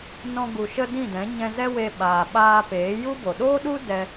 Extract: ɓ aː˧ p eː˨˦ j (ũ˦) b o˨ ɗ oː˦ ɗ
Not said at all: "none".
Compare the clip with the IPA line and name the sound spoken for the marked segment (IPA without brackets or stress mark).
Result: u˦